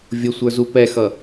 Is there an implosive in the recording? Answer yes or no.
no